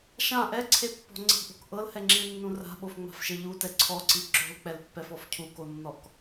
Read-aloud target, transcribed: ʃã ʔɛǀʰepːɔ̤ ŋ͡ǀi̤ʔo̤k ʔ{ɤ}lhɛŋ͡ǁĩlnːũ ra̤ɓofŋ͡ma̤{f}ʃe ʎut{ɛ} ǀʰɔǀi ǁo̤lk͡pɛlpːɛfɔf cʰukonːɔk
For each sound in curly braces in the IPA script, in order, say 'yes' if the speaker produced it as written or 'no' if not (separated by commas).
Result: yes, yes, yes